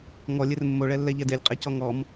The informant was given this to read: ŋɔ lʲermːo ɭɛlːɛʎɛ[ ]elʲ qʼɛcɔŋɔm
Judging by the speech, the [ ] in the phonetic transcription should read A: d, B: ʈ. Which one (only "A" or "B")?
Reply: A